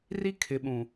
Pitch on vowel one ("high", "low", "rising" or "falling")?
high